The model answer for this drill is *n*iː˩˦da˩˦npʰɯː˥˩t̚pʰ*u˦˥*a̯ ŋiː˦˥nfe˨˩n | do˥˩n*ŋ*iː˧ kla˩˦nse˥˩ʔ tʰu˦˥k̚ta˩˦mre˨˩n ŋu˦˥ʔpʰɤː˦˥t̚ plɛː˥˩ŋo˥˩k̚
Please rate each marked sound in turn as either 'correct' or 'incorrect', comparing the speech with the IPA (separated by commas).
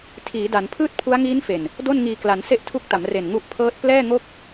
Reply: incorrect, correct, correct